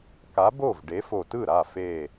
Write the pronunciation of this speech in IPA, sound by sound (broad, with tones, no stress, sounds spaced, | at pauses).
k a˨˥ b o˥˩ v ɖ e˨˥ f o˧˩ t ɯ˥˩ ɾ a˥˩ f e˧˩